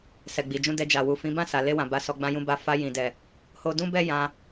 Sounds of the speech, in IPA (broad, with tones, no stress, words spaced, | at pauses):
sɛ˨ɡ͡bi˨d͡ʒũ˧dɛ˧ d͡ʒa˨wu˨fĩ˨˦ bã˦˨sa˨le˧wã˨ ba˧sɔ˧ɡ͡bã˦ jũ˧ba˧ fa˧jĩ˨dɛ˨ | ho˧dũ˦bɛ˦ jã˧